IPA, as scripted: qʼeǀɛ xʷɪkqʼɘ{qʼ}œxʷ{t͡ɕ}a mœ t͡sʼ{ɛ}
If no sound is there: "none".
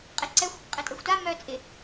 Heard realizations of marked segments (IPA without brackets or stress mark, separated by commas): tʼ, t, ɪ